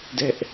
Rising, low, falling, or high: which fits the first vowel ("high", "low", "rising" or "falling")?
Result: high